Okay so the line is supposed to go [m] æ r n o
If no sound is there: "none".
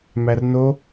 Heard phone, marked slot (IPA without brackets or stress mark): m